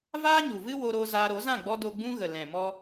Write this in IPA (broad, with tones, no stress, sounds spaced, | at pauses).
v aː˦ ɲ u˨ v ɨ˦ w o˧ ɾ o˧ z aː˧ ɾ o˨˦ z ã˦˨ ɡ͡b ɔ˧ d o˧ ɡ͡b ũ˦ ɣ ə˨ l ɛ̃˨ m ɔ˦